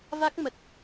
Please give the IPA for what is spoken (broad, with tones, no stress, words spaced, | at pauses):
va˦˥k̚mə˨˩t̚